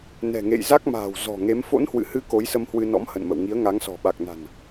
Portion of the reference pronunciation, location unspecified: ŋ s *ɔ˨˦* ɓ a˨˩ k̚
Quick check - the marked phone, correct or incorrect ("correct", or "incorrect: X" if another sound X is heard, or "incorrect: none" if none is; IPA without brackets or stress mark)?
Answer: incorrect: ɔ̤˨˩